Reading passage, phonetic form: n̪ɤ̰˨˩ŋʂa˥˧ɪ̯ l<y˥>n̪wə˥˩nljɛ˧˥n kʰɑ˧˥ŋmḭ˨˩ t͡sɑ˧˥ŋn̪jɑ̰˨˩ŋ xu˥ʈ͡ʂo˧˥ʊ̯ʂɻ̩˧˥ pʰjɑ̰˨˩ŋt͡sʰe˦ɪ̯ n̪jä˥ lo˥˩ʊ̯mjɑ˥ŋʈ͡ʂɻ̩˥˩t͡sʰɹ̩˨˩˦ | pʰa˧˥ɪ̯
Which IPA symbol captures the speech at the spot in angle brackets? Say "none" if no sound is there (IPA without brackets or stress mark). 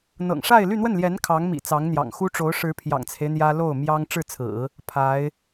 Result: y˥˧